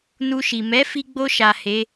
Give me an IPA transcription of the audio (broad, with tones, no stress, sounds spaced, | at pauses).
n u˧ ʃ i˨ m ɛ˨˦ f i˧ ɡ͡b o˧ ʃ a˨ h e˨˦